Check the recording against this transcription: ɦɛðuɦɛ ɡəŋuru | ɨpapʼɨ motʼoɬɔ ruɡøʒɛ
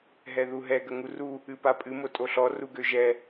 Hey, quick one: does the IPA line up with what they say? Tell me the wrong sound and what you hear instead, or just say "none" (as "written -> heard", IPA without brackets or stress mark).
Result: none